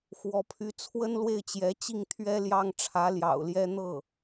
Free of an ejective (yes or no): yes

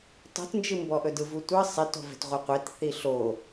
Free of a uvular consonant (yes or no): no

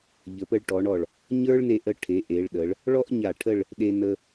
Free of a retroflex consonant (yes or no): no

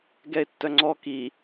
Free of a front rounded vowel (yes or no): no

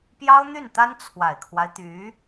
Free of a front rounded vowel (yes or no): no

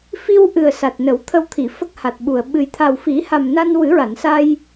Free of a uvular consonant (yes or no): yes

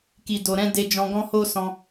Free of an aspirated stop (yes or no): yes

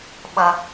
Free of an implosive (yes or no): no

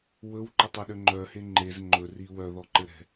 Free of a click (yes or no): no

